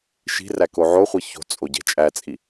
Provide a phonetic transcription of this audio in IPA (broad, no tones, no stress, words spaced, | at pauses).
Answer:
ʃi̤ræ koʕoχʷi ço̤t͡sʼo ɟe̤t͡ʃʼæt͡sʼi